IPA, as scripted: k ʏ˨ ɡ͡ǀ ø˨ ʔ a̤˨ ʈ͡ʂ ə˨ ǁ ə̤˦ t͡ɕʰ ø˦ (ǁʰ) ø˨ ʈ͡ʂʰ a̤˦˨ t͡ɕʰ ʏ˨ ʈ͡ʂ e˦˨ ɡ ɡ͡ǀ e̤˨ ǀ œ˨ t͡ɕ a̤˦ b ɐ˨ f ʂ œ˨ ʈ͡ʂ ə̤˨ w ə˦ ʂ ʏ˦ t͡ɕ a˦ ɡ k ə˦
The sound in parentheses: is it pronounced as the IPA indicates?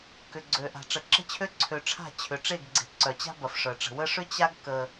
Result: no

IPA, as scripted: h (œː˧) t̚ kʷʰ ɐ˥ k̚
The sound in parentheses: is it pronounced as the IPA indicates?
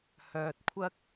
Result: yes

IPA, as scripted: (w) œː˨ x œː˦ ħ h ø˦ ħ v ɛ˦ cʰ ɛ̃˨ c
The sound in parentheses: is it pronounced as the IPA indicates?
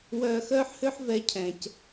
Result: yes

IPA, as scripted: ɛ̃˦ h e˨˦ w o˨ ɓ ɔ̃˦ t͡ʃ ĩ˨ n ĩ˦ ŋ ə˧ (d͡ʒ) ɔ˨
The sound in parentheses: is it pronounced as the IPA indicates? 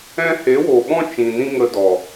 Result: no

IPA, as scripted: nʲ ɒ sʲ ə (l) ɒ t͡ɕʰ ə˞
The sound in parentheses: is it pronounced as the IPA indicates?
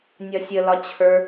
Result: yes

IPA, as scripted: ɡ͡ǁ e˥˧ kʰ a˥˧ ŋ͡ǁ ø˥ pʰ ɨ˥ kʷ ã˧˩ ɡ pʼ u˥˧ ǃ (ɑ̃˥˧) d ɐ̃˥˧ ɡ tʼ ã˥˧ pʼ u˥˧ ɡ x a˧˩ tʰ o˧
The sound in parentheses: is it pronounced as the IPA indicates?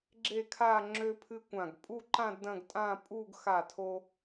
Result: no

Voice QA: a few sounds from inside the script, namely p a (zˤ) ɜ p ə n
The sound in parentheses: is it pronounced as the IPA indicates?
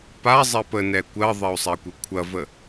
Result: yes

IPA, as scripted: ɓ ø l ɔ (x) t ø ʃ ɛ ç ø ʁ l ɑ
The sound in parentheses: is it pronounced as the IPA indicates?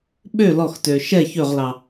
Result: yes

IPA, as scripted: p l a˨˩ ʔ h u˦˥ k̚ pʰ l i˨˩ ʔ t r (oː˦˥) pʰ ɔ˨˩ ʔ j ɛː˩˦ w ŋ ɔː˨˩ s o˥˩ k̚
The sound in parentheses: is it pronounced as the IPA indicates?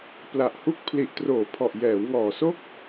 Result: no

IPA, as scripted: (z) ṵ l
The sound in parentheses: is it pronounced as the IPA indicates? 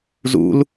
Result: yes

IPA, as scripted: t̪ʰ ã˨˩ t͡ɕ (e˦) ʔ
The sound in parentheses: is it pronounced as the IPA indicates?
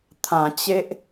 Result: yes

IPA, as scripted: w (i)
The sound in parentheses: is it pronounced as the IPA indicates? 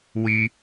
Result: yes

